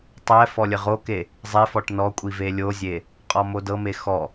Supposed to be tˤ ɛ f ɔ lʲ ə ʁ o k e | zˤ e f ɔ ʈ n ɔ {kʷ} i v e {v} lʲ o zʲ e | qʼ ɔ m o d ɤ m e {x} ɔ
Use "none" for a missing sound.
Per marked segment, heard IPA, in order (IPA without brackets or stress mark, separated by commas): kʷʼ, none, x